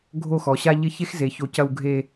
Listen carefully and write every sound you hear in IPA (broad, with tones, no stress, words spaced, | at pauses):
ɡʱo˥˧xɔ˩˧ɕa˥ ʎɪ˥˧çe˥xze˩˧ ço˧cɐ˥˧w ɡʱe˥˧